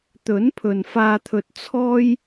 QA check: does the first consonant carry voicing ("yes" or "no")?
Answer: no